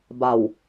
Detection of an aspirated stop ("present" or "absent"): absent